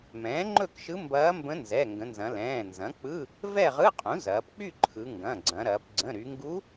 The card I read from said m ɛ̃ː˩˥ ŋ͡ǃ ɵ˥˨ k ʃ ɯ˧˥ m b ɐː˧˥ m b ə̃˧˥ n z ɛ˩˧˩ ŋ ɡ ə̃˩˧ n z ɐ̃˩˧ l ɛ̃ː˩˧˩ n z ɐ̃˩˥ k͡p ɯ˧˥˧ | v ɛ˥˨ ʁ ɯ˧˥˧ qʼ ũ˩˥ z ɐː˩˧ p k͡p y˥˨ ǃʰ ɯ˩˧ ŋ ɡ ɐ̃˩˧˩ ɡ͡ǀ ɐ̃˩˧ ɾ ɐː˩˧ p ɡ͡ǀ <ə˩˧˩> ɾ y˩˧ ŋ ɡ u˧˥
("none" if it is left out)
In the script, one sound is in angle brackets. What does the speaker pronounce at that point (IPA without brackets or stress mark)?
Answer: ə̃˩˧˩